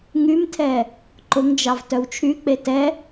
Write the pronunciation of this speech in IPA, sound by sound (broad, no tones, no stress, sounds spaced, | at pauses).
ŋ y m tʰ ɛ | ǃ ʊ ŋ d͡ʒ ɑ v t œ w t͡ʃʰ y k͡p e t ɛ